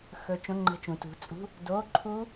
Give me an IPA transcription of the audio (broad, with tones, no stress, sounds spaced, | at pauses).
x ɵ˧ t͡ʃ õ˧˥˧ ŋ͡ǃ ə̤˧˥˧ t͡ʃ ũ˩˧ t ṳ˩˥ t͡sʼ ṳ˧˥˧ | d o˧˥˧ ǃʰ u˦˥